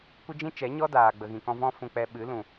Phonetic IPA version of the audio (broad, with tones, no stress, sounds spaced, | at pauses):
kʷ ə˦ d͡ʒ ĩ˦ t͡ʃ ɛ˨˦ ɲ ɔ˦ d aː˨ ɡ͡b ə˨ ɣ ĩ˨ k ɔ̃˧ v ɔ̃˦ f ũ˧ k͡p ɛ˧ ɓ ɨ˨˦ l ũ˨